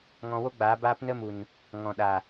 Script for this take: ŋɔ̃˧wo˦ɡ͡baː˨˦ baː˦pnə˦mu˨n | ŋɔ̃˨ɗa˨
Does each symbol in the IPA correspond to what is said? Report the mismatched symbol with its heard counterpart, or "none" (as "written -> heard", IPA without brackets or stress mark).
none